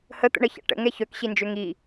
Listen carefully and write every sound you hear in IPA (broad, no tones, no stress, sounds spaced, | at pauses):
h ə t̪ ə̰ ɳ ə ç a̰ ʈ ə̰ ŋ ɛ ç œ k ɕ i n d͡ʒ ø ŋ i